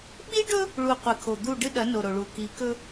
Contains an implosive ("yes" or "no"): yes